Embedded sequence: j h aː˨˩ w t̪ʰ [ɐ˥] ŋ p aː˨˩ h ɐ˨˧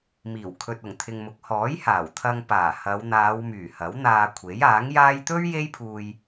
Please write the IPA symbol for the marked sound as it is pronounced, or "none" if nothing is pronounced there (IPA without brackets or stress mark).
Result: ɐ˧